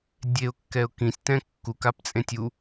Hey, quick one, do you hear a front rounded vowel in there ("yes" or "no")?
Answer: no